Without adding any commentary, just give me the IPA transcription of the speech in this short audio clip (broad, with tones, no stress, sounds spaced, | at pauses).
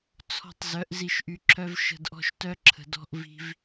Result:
t͡sʰ ɔ̤˨ tˤ z œ˨˦ ʔ z i˧ ʃ ʔ y˧ ǁʰ œ˦ v ʃ ə̤˧ d ʔ ɔ̤˦ ʃ t œ˦ ǁʰ ə̤˨ d ɔ̤˧ ʔ v i̤˦ v